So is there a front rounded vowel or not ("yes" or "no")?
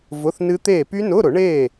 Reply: yes